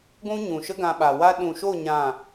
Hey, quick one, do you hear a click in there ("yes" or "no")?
no